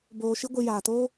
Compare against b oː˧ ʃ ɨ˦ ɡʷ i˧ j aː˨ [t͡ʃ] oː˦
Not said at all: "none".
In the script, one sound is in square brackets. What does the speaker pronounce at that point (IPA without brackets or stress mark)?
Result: t